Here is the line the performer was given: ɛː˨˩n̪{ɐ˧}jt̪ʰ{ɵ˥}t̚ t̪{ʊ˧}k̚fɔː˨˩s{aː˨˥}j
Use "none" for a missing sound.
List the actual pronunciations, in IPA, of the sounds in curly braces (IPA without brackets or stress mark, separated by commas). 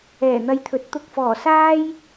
ɐ˧, ɵ˨˥, ʊ˧, aː˥